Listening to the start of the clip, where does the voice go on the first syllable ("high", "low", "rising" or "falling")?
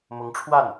rising